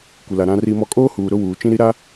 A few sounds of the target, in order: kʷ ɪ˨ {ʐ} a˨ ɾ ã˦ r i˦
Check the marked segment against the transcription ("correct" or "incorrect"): incorrect